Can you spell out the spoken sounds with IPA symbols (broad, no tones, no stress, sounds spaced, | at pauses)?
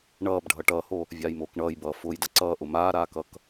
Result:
ɳ ʌː b ɖʱ ʌ ʈ ʌː h o | vʲ aː j m oː k ɳ ʌː j b ʌː f ʊː j d ʌ ǀ ʌː ʔ ʊ m aː ɾ aː k ʌ k